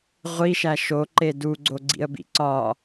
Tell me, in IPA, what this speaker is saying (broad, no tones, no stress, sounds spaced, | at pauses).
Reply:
ʁʷ i ʃ æ ʃ o ǃ e d u ɡ͡ǀ o ɡ͡ǀ ḭ ə̯ b ḭ ǀ ɒ